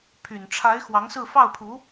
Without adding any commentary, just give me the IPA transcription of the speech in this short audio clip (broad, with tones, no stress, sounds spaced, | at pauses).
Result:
pʰ y˨˩ n ʈ͡ʂʰ a˧˥ ɪ̯ x w ɑ˧˥ ŋ s ɹ̩˥˧ f ɑ˥˩ ʊ̯ pʰ u˧˥